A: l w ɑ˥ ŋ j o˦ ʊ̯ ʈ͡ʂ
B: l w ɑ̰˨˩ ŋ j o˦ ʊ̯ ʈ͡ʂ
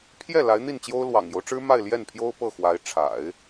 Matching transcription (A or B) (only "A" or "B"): B